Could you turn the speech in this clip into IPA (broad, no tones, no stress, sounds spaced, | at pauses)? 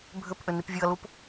bʱ ʏ p ʔ ʏ n i p vʲ u ɐ̯ l u p